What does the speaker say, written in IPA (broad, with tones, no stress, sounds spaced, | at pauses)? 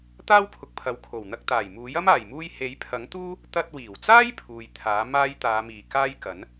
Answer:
t̪ aː˥ w pʰ ʊ˨ k̚ pʰ ɐ˨ w kʰ o˨˩ w n̪ ɐ˧ k̚ t̪ aː˨˩ j m uː˨˥ j ɐ˥ m aː˨˩ j m uː˧ j h e˨˥ j pʰ ɐ˨˥ ŋ t̪ uː˥ | t̪ ɐ˧ t̚ w iː˨˩ w t͡s aː˥ j pʰ uː˨ j t̪ʰ aː˨˥ m aː˥ j t̪ aː˨˧ m iː˨˩ k aː˥ j k ɐ˨˥ n